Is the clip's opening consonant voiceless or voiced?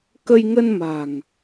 voiceless